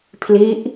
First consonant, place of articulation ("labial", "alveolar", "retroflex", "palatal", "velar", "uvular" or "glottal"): labial